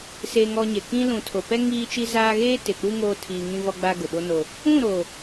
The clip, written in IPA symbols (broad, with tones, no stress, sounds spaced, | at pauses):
s e˨ ŋ ɔ˨ ɲ e˨ k ĩ˦ l ũ˨ tʰ o˨ p ɛ˦ ŋ iː˦ t͡ʃ i˦ z aː˦ ɣ eː˦ t ɪ˨ k͡p u˦ ŋ oː˦ tʰ iː˨ ŋ ĩ˦ v ɔ˦ ɡ͡b a˦ ɡ ʊ˨ ɓ o˦ n o˦ | ũ˦˨ ɾ o˨